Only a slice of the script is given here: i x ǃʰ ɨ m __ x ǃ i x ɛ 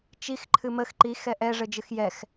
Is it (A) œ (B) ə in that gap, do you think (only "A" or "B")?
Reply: B